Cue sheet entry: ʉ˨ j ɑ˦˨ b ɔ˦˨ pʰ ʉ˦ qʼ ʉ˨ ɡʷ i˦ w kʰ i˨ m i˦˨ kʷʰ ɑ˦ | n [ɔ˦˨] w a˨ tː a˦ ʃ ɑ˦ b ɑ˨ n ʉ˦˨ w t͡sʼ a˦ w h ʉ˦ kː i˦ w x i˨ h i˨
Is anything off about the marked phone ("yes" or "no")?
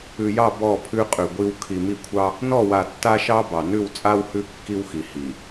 no